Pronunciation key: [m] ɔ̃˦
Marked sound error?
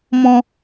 no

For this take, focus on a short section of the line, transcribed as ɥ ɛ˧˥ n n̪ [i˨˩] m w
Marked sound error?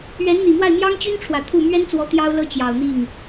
no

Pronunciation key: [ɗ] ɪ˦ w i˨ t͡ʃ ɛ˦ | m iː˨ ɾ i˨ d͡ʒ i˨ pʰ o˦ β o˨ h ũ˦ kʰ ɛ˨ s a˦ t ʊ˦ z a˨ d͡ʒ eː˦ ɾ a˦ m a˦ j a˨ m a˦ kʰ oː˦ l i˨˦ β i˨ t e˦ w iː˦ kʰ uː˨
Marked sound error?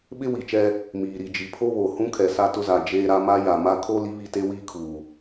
yes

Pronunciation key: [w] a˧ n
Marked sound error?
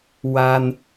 no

